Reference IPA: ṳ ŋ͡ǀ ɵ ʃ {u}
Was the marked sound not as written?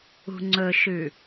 yes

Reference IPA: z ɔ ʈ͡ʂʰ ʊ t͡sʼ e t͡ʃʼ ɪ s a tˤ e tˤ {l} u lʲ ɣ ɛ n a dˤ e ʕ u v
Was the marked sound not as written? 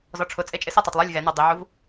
yes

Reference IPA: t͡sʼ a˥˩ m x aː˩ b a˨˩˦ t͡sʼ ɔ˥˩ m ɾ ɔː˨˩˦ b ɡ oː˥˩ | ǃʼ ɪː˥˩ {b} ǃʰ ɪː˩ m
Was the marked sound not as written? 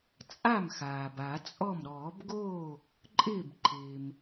no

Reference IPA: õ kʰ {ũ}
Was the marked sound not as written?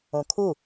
yes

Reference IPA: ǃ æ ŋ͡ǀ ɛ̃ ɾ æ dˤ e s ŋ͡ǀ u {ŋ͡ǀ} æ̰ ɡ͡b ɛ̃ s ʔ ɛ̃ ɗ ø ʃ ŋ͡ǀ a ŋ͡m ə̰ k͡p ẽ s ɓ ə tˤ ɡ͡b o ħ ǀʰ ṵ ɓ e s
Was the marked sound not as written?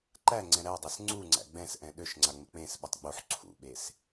no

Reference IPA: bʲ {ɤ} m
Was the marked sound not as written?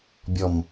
yes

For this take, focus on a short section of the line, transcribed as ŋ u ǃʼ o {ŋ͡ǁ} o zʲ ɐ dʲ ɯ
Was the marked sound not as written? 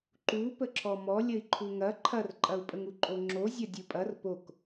no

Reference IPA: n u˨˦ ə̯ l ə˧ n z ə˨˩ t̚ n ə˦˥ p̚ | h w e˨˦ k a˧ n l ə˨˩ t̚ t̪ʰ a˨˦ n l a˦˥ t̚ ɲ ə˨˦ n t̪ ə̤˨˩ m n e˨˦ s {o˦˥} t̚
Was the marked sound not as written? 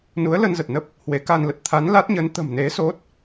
no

